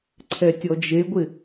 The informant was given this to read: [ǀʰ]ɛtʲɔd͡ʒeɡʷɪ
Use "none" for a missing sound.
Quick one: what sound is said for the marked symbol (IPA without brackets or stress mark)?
ǀʰ